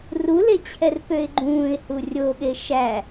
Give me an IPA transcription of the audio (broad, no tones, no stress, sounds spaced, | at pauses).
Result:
r u l e t͡ɕʰ ɛ r p ø ɪ̯ ɡ͡ǃ ũː ɪ̯ h u rʲ o ɠ e ʃ æ